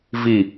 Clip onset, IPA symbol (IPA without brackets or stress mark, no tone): v